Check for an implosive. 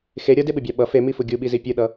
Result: present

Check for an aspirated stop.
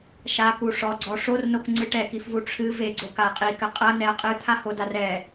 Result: present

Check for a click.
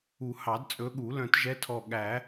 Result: absent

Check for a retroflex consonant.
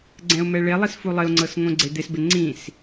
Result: present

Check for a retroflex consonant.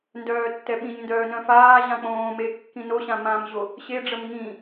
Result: present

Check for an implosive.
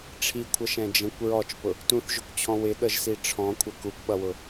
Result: present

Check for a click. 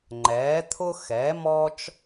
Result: present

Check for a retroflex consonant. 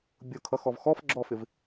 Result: absent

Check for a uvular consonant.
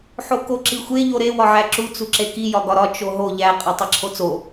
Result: present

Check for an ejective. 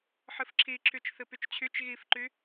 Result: absent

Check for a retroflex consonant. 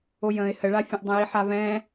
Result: present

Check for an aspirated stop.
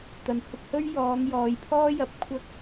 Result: present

